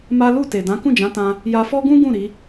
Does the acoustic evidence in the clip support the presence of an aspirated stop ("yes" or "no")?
no